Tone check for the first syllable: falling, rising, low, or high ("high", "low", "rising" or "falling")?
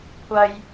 low